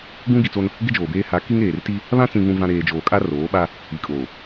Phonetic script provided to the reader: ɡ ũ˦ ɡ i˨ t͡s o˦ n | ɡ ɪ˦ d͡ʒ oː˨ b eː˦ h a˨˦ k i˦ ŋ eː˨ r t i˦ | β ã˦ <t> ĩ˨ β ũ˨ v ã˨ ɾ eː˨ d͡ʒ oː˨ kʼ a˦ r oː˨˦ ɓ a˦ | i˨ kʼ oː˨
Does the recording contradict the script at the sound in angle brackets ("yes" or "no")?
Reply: yes